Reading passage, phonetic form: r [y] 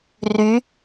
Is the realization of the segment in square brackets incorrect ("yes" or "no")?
no